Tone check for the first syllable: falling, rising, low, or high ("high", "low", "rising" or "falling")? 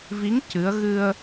rising